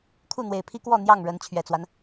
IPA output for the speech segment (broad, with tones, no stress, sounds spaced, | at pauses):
kʰ u˥˨ n̪ w e˨˩ ɪ̯ pʰ i˦ k w ɔ˥˨ n̪ j ɑ˥˨ ŋ ɻ ə˨˦ n t͡ɕʰ ɥ ɛ˨˩ t͡s w a˦ n